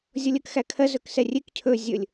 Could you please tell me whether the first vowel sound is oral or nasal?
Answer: oral